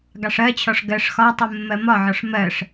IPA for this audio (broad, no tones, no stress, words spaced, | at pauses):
ɡɑʂɜt͡ɕʰɒʂ ɡɜʂ xɒtˤu mːɜmɒʕɒʂ mɜʂ